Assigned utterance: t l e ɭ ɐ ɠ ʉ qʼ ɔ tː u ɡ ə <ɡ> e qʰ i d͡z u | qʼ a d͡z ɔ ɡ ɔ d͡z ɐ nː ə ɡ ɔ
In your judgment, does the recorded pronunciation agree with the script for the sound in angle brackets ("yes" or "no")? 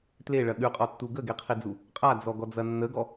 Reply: yes